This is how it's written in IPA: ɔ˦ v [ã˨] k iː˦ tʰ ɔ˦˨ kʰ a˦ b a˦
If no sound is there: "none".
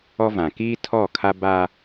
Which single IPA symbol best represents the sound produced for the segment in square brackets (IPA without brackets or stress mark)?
ã˨